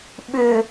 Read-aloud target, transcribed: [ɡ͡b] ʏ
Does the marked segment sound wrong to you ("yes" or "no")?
yes